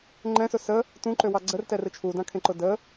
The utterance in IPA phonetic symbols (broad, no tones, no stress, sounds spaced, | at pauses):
ŋ͡ǃ ɛ̃ s ʊ s ə | t ũ ǃ ø w ɑ ɡ͡ǀ ə r t ɛ r ɯ t͡ʃʰ u d ã kʰ ẽ ǃ ʊ d ə